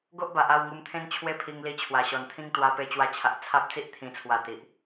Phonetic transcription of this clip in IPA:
ɡ o˦ ʔ b a˨ ʔ a˥˧ w ŋ u˧ m t̪ʰ ẽ˦ n t͡ɕʰ w e˦ pʰ i˧ ŋ l i˧ t͡ɕʰ w a˨˩ ɕ ɔ˨˩ n t̪ʰ ĩ˦ ŋ t̪ w a˧ p e˧ t͡ɕ w a˧ t͡ɕʰ a˨ ʔ t͡sʰ a˦ p̚ t͡s i˦ ʔ t̪ʰ ĩ˨˩ t͡sʰ w a˨˩ t̪ i˨ ʔ

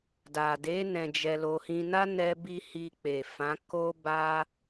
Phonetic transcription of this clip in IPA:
d a˨ d e˨˦ n ɛ̃˧ d͡ʒ ɛ˧ l o˧ h ĩ˧ n a˦ n ɛ˦ b i˦ h i˧ k͡p e˨ f ã˨˦ k o˦ b a˦

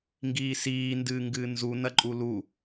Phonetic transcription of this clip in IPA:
ŋ ɡ iː s iː n d ɨː ŋ ɡ ɨː n z u n ɐ ǃʼ u l u

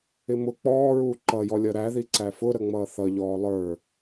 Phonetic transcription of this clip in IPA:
ɪ m ʊ k͡p ɔː ɹ uː ǃ ʌ j ɔ lʲ ʌ ɾ æ ð i ǀ æ f ʊ ɾ ə ŋ͡m ʌː θ ʌ ʎ ɔː lˠ ə˞

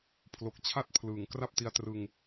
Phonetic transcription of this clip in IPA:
pʰ l o˨˩ k̚ t͡ɕʰ a˥˩ t̚ pʰ l ɯː˩˦ ŋ k r a˥˩ p̚ t i˧ a̯ t r ɯ˧ ŋ

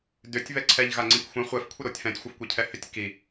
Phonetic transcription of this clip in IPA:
d ʏ tʲ β ɛ ǀʰ ɛ ʎ ɣ a ŋ͡ǀ ĩ k xʷ ɛ̃ χʷ ɛ f kʷʰ ɛ ɾ o tʲ f ɛ̃ tʲ xʷ ɘ f kʷ ɛ cʰ ɛ h ʏ tʲ k i

